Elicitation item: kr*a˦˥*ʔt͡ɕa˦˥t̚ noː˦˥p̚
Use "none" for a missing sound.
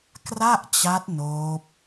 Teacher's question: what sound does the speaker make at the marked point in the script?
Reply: a˥˩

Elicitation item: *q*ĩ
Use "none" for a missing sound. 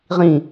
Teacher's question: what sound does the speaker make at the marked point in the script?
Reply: ʁ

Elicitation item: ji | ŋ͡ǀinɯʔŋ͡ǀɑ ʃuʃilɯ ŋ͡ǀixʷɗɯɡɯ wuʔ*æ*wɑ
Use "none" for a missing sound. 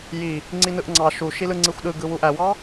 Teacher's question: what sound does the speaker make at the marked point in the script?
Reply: æ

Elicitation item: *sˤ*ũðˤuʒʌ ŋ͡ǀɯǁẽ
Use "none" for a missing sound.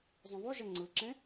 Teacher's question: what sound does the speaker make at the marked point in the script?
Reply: zˤ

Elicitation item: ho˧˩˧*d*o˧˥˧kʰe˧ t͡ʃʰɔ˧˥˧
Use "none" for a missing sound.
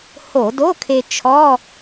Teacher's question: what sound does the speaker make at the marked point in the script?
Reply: d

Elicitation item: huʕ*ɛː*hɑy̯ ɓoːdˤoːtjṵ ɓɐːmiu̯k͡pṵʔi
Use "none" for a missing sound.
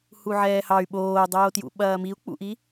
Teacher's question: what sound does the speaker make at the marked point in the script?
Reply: ɛː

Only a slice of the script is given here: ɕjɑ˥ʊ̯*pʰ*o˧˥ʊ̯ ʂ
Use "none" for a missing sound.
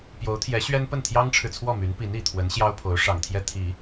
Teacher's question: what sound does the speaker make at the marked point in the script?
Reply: pʰ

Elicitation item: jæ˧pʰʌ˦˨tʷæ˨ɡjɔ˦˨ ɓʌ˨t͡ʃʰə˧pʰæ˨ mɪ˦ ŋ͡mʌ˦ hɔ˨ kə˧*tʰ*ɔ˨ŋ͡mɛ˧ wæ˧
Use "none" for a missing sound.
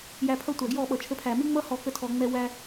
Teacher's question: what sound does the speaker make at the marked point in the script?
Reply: tʰ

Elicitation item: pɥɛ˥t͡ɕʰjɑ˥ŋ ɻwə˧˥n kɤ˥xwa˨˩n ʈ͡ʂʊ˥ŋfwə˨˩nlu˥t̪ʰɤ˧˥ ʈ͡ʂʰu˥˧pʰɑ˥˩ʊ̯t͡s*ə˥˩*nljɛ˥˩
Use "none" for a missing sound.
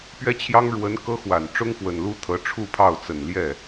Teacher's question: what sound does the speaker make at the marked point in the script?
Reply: ə˨˩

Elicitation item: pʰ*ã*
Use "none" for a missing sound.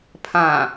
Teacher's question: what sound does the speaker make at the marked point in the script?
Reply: ã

